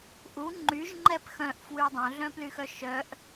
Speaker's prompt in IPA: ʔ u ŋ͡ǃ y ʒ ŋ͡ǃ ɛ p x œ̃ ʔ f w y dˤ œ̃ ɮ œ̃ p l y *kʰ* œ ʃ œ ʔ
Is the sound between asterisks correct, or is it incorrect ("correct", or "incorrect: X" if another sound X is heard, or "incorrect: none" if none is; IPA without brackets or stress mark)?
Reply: incorrect: x